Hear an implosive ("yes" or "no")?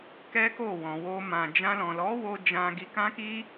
no